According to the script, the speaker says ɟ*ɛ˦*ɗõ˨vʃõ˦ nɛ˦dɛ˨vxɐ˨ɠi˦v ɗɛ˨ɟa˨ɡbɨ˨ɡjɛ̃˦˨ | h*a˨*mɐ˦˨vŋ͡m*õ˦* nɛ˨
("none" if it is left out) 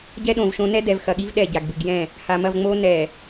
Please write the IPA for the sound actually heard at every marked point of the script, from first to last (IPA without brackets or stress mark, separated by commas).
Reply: ɛ˦, a˨, o˦